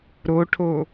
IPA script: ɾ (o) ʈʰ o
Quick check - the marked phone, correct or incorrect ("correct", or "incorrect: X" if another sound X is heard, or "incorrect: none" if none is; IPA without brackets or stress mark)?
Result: correct